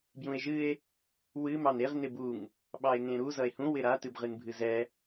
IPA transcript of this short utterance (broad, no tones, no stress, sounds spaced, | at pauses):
b j ũ e̯ ʒ ɨ e̯ | w ɨ m ɑ n e ʁ n ɪ b u ŋ | ɓ ɑ e̯ ŋ ẽ ɾ u z ʌ e̯ h ũ w ɪ ɾ a t ɨ b ʁ ɨ n bʱ ɨ z ɛ